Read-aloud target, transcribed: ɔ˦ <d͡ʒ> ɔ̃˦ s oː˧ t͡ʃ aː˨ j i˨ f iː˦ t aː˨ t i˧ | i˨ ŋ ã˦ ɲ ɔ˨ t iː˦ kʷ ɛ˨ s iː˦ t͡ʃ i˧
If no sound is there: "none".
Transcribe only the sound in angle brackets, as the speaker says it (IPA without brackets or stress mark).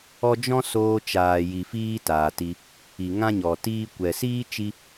d͡ʒ